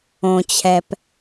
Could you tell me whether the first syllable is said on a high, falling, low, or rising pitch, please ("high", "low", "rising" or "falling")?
low